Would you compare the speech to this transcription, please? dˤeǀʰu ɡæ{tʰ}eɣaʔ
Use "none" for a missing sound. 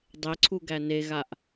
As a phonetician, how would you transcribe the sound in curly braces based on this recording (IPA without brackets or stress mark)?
n